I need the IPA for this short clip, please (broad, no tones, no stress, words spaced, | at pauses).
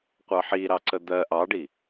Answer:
qʷɑħiɾɑ ǀəd̪ɜ ʔɑɖi